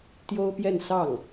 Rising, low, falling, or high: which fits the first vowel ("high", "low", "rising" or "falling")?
high